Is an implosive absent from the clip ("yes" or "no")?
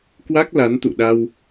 no